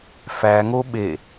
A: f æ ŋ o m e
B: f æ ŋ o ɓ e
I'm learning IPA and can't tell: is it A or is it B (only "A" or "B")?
B